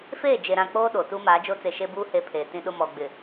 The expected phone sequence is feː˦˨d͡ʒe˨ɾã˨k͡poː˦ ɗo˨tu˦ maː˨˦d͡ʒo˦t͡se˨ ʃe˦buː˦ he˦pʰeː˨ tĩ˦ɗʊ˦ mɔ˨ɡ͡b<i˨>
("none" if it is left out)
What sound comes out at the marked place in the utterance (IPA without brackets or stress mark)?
ɪ˨